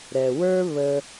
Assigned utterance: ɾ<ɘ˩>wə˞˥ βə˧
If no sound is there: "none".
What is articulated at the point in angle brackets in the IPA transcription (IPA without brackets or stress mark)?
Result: ɛ˩